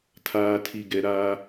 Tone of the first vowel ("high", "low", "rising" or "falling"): low